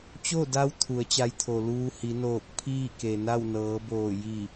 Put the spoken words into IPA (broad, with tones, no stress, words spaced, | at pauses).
t͡ɕo˥˨da˧w t̪ʰu˩˧ə̯t͡ɕa˧jt̪ʰo˩ luː˧hi˩˧ noː˧˩k̚ pʰiː˥˨ke˩ na˥˨wnɤː˩˧boː˧˩ ji˧˩